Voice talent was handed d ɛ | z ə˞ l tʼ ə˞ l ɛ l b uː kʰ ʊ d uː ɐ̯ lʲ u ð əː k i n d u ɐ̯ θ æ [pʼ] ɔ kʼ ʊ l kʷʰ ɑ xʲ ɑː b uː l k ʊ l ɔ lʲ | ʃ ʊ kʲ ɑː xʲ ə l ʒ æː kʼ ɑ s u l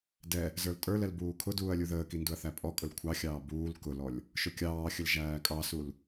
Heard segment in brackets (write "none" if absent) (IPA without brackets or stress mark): pʼ